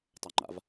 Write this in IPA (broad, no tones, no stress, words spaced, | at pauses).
tˤaŋ͡ǃa̰v